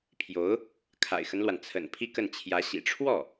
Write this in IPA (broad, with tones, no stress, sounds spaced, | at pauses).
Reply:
pʰ j o˧˥ ʊ̯ | kʰ a̰˨˩ ɪ̯ x ə˦ n l w a˩ n t͡sʰ ə̰˨˩ n pʰ i˥˧ k ə˥˩ n t͡ɕʰ j ä˧˥ ɕ ḭ˨˩ ʈ͡ʂʰ w ɔ˥˩